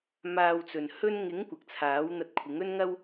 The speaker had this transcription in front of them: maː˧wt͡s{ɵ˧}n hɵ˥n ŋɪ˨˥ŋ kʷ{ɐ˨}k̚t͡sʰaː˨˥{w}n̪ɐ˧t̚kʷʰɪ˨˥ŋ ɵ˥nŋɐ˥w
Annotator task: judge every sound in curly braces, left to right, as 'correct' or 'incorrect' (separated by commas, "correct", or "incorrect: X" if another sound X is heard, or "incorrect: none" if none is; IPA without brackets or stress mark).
incorrect: ɵ˨, correct, correct